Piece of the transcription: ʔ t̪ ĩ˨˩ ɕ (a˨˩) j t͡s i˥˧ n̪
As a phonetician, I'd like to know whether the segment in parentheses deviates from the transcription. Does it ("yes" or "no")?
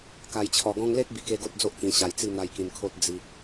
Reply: no